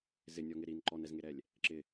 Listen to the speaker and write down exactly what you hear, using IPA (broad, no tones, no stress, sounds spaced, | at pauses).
z ɪ nʲ ɔ ŋ ɪ ɾ i n ǃ ɔ n ɛ z ŋ e ɾ ɛ lʲ | ǁ ɪ